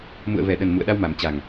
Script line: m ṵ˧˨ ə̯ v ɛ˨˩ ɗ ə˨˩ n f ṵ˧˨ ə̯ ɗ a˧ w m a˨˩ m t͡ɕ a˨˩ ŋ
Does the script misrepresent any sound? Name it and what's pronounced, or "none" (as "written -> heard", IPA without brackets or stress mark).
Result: f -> m